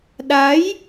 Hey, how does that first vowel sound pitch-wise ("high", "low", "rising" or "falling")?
rising